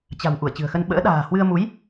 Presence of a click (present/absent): absent